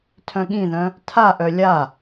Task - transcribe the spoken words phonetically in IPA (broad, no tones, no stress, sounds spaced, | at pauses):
tʰ œ̃ ɠ ĩ ð œ̃ | tʰ a ʔ œ lʲ a